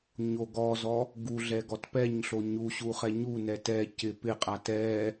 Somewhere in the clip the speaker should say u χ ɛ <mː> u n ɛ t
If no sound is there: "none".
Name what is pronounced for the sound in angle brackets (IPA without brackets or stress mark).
ɲ